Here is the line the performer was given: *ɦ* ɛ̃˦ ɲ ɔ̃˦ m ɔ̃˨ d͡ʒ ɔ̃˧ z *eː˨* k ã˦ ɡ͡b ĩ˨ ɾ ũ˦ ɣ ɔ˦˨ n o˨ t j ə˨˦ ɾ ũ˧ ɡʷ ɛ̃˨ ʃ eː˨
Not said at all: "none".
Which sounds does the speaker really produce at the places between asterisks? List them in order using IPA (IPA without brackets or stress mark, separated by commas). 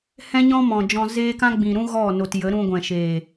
h, eː˦